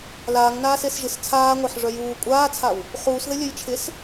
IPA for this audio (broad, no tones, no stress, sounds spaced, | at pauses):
l aː ŋ n aː s e s ʒ ɨ s t͡sʰ aː ŋʷ e ħ ʐ œ j uː kʷʼ aː t͡sʰ a w | χ uː s ð ɘ lʲ œ j t͡ʃʰ ɪ s